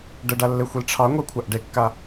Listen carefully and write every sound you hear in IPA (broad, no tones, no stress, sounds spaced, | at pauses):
ɖ ə ɖ a lː e xʷ i l ʈ͡ʂʰ ɑ ŋʷ ɛ kʷʰ a ʔ ɖ e kː a